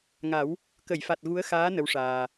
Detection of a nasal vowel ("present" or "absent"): absent